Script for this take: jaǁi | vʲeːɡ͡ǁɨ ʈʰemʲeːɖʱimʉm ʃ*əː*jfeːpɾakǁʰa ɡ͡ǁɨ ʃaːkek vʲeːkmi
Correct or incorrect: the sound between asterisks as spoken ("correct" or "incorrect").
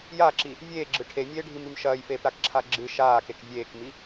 incorrect